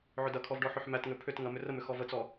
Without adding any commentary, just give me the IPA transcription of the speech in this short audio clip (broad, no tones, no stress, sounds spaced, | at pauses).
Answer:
ʕ ʏ d ɐ kʰ ɔ v ɖ ɔ ħ ʏ ħ m æ t ŋ ʏ pʰ ʏ t ŋ ɐ m ʏ r ə m ʏ x ɔ v ə t͡s ɔ